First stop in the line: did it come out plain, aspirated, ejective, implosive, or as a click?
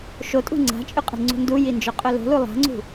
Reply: ejective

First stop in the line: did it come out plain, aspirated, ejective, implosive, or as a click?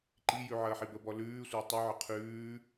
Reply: click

